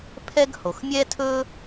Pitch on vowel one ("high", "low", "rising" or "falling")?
high